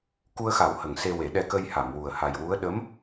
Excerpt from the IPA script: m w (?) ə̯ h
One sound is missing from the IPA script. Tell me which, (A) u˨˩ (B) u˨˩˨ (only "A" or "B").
A